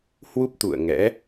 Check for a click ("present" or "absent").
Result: absent